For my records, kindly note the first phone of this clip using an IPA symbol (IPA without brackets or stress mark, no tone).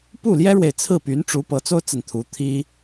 p